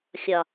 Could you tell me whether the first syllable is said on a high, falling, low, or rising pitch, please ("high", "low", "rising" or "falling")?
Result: low